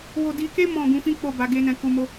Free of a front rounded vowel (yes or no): yes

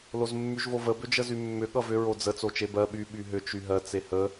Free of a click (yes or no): yes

